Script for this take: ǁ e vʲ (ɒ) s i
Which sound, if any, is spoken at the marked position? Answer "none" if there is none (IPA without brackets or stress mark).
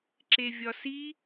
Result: ɒ